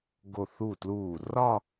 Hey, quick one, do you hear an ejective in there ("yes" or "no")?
no